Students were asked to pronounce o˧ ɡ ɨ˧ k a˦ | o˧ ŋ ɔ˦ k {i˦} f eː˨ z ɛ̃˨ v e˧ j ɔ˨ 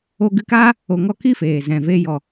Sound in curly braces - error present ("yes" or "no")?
no